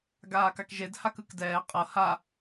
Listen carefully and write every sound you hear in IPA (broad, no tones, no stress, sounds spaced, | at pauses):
ɡ aː k a k ʒ e d h a k ɯ k d ɛː qʼ ɤ h a